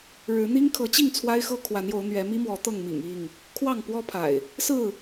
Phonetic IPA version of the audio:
ɻɻ̩˨˦ n̪i˦ŋkʰɤ˨˦t͡ɕi˥˨ŋ t͡sʰwa˦ɪ̯xɤ˦ kʰwa˨˦njo˨˦ʊ̯ n̪ɥɛ˨˦mi˦mwɔ˨˦ t̪ɤ˥˨ŋmḭ˨˩ŋ i˥˨ŋ | kʰwɑ˥˨ŋpwɔ˦pʰa̰˨˩ɪ̯ | sɹ̩˥˨

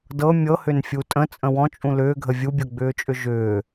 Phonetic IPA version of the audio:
dɤ mʲɤhʏn fʲutʼə̃ t͡sʼə̃wɔ̃t͡ʃʼũ lʏːɡʱə vʲubʲɤɡ͡bʏːt͡ʃʼʏ ʒʏː

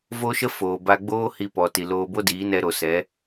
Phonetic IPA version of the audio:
vo˦ʃə˦ foː˨ba˧ɡ͡boː˦ hi˧pɔ˨ ti˨loː˧bo˦ diː˨˦nɛ˧ɾo˨sɛ˨˦

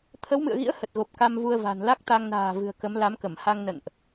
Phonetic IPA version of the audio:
t̪ʰə˨˦wmɨ̰˧˨ə̯ɣḭ˧˥ə̯ hə˨˩t̚ɣo˨˩p̚ ka˧mvu˧ə̯va̤˨˩n la˦˥k̚t̪a˧ŋna̤ː˨˩ vɨ̤˨˩ə̯kə˨˦mla˨˦mkə˧˩m ha˧ŋnə̰˧˨nʔ

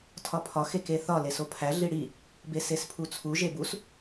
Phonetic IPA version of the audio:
tʰɒpʰɒ xekeθɒ lesopʰæ ɮiɽi | besespʰut͡sʰu ʒebus

